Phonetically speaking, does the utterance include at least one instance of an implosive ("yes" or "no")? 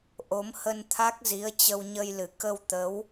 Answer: no